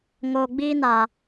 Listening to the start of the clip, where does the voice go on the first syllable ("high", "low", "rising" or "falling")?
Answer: low